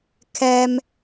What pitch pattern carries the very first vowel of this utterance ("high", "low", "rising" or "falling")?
high